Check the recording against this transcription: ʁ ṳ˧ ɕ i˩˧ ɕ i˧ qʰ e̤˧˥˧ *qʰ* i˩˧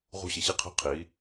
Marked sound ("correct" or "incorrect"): correct